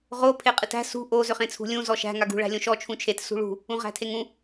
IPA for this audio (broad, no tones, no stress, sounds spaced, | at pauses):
ʁ o pʰ e qʼ ɨ t æ̤ s ṳ ʔ o z ø χ ẽ t͡sʰ ṳ lʲ ũ z ɔ ʃ æ̤ ŋ a ɡ ṳ ɭ æ̤ lʲ õ ʃ ɔ t͡ʃʰ ũ t͡ʃʰ e t s ṳ ɭ ṳ | ũ ʁ æ̤ tʰ e ŋ ũ